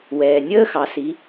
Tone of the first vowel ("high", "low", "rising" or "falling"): low